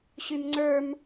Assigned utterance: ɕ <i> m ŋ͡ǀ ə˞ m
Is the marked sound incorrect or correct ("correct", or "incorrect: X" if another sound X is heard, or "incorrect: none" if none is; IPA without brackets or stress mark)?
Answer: incorrect: y